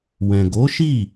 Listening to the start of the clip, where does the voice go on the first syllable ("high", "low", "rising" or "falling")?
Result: low